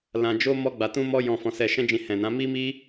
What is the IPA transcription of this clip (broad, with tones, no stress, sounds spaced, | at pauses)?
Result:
l ã˧ d͡ʒ o˦ m ɔ˦ ɡ͡b a˧ t ũ˦ m ɔ˦ j ɔ̃˧ f ɔ̃˧ s ɛ˧ ʃ ɛ̃˦ d͡ʒ ĩ˧ h ɛ̃˨ n ã˨˦ m i˦ m i˦